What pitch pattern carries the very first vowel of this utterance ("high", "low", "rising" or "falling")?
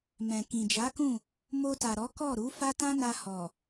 low